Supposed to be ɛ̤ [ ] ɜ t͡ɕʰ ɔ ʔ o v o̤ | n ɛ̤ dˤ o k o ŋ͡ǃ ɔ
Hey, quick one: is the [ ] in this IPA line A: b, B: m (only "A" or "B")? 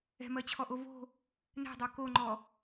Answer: B